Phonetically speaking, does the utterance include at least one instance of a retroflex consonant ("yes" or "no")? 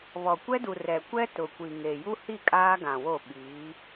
no